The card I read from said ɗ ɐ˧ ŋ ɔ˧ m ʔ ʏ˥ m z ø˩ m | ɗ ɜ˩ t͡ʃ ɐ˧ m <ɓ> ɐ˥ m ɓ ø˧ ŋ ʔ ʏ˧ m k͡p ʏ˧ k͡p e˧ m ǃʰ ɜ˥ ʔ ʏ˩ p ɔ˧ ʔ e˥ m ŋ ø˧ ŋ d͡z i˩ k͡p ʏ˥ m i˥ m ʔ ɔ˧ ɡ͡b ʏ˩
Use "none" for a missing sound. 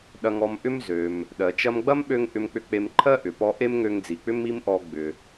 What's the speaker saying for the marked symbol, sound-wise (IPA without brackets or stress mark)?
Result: ɡ͡b